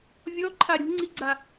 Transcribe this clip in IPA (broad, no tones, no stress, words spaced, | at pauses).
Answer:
vʲɔǃʰa ɾʲṳŋ͡ǀiɡ͡ǀa